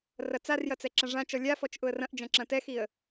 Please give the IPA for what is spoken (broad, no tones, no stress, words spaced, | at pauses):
rɐt͡sarjɐ t͡sɛǁɐ̃ʐãt͡ʃɔ lʲafɔt͡ʃ ʔʊə̯rɐ̃ʔd͡ʒɐ̃ ǁɐ̃tɛxiə̯